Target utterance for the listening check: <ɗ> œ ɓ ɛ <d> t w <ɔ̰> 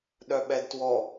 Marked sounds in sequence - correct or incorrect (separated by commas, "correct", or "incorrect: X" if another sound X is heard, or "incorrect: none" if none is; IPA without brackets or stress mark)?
correct, correct, incorrect: ɔ